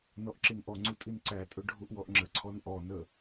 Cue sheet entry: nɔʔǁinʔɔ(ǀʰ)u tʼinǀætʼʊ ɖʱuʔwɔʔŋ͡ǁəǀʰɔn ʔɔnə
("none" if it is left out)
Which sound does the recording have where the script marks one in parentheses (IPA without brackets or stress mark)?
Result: ŋ͡ǀ